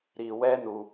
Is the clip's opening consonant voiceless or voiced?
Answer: voiced